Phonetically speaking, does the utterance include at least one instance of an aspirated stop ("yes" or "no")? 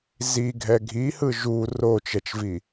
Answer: no